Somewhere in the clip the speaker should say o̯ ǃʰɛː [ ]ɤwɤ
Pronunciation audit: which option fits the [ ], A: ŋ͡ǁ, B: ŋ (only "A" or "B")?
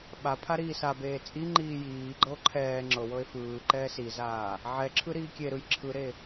A